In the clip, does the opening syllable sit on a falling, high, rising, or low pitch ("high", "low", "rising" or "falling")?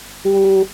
high